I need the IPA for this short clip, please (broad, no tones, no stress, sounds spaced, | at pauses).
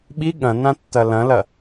ɓ i ɠ ɐ̃ n ã tː ɐ l ɐ̃ l ɐ